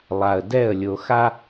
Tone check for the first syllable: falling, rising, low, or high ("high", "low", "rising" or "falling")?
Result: low